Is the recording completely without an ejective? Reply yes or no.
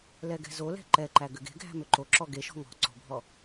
yes